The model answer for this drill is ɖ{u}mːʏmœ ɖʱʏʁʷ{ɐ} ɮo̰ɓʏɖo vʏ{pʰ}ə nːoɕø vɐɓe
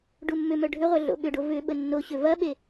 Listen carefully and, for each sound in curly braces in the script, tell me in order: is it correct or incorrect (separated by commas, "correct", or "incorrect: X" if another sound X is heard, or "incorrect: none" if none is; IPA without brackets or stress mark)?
correct, correct, incorrect: ɓ